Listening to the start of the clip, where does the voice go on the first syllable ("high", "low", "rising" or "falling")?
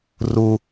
high